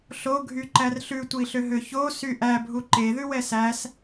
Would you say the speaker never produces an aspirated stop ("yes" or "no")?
yes